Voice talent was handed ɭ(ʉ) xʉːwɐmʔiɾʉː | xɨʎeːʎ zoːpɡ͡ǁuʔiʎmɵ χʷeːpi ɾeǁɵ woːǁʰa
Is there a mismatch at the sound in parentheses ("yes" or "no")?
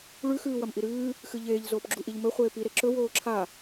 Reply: no